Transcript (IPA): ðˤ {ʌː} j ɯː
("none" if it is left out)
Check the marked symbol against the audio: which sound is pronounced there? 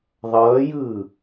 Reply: ʌː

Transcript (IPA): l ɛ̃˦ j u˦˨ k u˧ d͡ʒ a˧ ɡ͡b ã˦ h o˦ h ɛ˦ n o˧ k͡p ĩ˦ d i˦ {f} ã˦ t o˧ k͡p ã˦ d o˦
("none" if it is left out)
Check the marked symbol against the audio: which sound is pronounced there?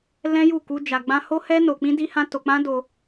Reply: h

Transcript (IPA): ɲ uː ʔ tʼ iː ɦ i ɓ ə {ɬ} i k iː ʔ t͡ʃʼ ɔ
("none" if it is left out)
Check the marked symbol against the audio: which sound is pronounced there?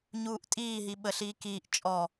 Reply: ɬ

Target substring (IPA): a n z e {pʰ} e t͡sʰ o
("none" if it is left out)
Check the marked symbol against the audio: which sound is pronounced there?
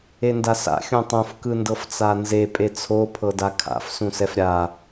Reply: pʼ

